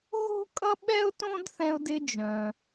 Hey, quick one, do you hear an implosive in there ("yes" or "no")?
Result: yes